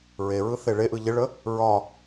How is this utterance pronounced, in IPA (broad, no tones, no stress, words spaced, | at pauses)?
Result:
ɹeɹɯ θeɭeʔɯ ʎɪɭə | ɹɒ